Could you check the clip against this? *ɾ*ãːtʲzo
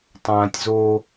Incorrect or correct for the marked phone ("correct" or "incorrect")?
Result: incorrect